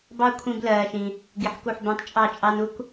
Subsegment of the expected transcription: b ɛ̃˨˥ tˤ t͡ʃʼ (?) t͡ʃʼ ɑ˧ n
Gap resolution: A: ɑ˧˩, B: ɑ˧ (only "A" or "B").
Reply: A